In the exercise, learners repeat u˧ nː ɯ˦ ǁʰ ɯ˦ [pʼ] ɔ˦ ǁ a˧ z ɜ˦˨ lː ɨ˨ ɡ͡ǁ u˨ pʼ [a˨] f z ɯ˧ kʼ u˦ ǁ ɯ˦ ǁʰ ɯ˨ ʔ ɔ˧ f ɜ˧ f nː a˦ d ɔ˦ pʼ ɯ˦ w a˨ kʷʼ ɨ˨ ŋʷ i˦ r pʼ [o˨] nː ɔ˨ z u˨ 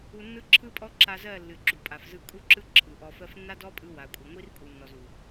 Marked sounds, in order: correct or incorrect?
correct, correct, incorrect: u˨

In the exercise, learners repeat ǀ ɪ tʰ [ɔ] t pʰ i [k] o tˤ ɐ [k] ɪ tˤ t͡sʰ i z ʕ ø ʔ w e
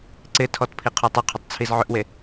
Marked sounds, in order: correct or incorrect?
correct, incorrect: qʰ, incorrect: qʰ

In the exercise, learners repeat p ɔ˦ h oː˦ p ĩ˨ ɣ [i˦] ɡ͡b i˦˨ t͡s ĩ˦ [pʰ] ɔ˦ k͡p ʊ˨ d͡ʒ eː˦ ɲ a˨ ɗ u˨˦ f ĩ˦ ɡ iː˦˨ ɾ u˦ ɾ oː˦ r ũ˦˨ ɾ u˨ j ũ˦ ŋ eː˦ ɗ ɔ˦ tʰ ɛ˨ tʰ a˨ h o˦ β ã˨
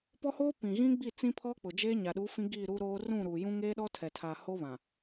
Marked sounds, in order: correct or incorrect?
incorrect: ĩ˦, correct

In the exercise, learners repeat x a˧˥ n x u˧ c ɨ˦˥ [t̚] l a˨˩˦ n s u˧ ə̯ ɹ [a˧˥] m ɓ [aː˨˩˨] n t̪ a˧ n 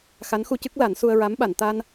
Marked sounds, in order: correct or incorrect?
incorrect: k̚, correct, incorrect: a˨˩˨

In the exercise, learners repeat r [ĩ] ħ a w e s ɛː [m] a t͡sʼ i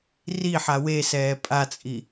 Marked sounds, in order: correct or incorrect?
incorrect: i, incorrect: pʼ

